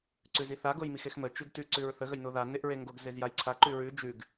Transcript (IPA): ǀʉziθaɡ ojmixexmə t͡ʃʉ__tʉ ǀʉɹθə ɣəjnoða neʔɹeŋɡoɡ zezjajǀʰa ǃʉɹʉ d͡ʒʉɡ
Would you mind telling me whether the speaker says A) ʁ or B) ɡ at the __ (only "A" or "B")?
B